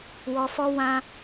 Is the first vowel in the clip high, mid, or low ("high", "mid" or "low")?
mid